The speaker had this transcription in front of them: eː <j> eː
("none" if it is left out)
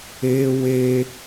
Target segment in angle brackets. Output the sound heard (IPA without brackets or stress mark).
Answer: w